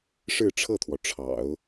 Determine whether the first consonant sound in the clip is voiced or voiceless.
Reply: voiceless